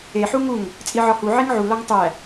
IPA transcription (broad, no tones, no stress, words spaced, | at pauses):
e ħuŋuŋ | t͡sʼiʕɒhu ʕiŋʕu lɒŋtˤæ